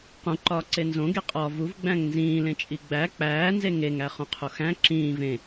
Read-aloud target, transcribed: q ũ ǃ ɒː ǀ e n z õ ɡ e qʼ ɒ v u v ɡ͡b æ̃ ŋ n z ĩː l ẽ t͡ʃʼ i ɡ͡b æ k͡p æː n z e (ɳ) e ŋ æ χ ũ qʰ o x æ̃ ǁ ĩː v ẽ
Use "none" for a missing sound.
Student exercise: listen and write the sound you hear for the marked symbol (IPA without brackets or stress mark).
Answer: ŋ